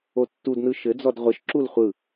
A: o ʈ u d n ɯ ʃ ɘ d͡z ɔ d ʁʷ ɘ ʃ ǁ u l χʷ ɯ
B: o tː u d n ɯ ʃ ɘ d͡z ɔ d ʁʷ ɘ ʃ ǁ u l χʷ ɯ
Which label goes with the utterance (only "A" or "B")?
B